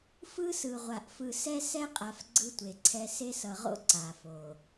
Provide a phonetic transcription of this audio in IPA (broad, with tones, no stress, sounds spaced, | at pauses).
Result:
f ɯ˦ s ɯ˨ ʁʷ a˨ ʔ f ɯ˨ s ɛ˦ s ɛ˦ qʼ a˨ f ɡ͡ǀ ɯ˦ tʷ e˨ ǀʰ ɛ˦ s e˦ s ʌ˨ ʁ o̰˦ ǀ a˨ f o˨